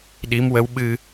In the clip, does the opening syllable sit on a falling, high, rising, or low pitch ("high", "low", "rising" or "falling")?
rising